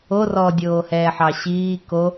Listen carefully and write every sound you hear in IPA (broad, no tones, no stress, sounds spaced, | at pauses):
o r ɔ dʲ oː h ɛː ħ ɑ ɕ iː k o